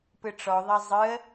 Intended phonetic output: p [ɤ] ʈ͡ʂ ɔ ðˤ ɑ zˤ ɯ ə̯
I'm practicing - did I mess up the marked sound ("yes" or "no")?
yes